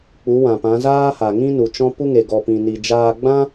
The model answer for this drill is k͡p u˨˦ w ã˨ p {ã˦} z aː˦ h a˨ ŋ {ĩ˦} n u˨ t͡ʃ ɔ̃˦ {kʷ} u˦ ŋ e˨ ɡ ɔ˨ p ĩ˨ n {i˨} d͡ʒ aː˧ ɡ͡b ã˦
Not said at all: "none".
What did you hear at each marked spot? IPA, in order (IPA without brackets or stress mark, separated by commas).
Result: ã˨˦, ĩ˦, p, i˨